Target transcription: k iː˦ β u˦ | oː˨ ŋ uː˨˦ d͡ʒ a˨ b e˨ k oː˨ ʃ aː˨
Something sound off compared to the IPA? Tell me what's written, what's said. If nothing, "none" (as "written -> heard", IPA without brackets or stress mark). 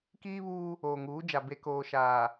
u˦ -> uː˦